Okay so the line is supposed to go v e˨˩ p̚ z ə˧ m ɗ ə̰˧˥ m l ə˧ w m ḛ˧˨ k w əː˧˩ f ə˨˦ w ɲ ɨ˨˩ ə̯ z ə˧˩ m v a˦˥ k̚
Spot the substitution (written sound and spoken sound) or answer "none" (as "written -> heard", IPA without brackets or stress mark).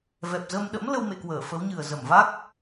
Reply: e˨˩ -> ɛ˨˩